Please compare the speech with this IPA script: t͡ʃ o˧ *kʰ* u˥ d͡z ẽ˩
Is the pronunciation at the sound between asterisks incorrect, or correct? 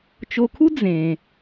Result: correct